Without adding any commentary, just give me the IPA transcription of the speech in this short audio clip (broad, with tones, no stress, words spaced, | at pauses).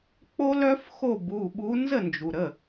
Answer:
k͡po˦˥lœ˦˥f xo˥˩bu˩˧˩ɓu˨˥ nzə˥˩nd͡ʒu˩ɾə˩˧˩